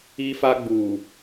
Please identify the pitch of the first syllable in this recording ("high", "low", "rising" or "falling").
high